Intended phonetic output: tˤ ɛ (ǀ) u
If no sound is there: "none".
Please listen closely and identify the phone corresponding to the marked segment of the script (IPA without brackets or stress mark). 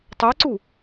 ǀ